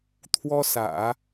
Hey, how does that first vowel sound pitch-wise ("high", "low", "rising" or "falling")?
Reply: high